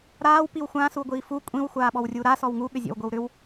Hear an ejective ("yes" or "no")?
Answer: yes